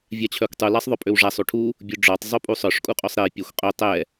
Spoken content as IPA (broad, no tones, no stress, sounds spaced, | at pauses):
vʲ a t͡ɕʰ œ kʷ tˤ u l a sˤ ðˤ œ pʼ ø w ʐ a sˤ u ʈʰ u | bʲ u ɖ͡ʐ ɔ tˤ zˤ u pʼ u sˤ œ ʂ kʼ u qʼ ø sˤ ɾ e pʲ a xʷ qʼ ø tˤ ɛ